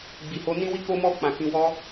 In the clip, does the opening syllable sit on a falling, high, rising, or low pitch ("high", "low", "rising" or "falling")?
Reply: low